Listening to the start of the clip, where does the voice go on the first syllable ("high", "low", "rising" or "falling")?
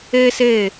high